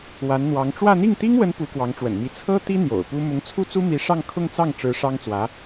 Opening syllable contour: rising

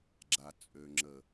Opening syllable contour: low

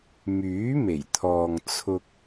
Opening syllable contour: rising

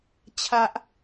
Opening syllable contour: high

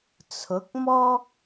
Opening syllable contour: rising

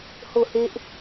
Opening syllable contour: falling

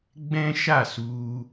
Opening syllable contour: high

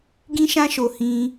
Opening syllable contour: high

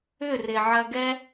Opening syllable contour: falling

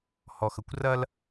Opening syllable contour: low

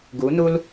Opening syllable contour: rising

